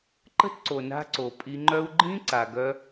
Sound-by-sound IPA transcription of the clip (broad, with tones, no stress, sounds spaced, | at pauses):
ǃ ə̤˦ t ǀ o˨ n a̤˧ ǀ o˨ pʼ i˧ ŋ͡ǃ œ˦ u̯ ɡ͡ǃ ĩ˦ ǀ a˨ ɡ œ˧